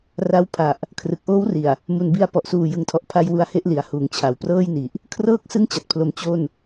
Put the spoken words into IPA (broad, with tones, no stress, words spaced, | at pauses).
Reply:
ra˦˥w pʰa˨˩ʔ | kʰrɯ˨˩k̚ʔoː˦˥wri˨˩a̯ | mu˨˩nbi˧a̯ pɔ˨˩ʔsuː˨˩jɯ˨˩ŋtʰɔ˨˩ʔ pʰa˧j wu˦˥a̯he˥˩ʔli˨˩a̯ huː˩˦ŋt͡ɕʰa˩˦wprɤː˥˩jni˨˩ʔ | kʰrɤː˦˥k̚sɯ˦˥ŋt͡ɕa˨˩t̚pʰlo˩˦m t͡ɕo˥˩n